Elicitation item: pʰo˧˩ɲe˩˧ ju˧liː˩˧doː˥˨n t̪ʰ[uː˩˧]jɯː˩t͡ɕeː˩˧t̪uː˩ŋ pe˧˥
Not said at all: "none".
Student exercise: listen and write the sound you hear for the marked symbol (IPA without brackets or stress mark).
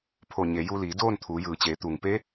uː˩˧